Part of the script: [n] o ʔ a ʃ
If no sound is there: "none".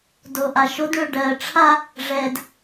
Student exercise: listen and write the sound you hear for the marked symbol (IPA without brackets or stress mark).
d